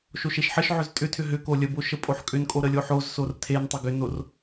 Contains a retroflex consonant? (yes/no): no